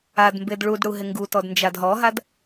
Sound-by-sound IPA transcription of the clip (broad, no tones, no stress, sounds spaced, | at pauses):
a d m b e d ɭ u d ɽ u ɦ ɪ ŋ ɡ u t ɔ d n d͡ʒ a d ɦ ɔ ɦ a d